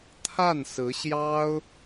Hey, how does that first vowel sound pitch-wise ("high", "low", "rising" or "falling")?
falling